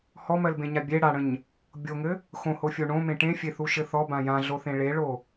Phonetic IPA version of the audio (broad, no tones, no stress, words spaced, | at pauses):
hɔmɜlbẽɲa bʲe ɽaɽə̃ɲ | bʲoŋɘ | xõhofʲo ɳõmẽ ʈẽfʲeθuʃɘ θɔbã jãɮoθẽ ɭeɭo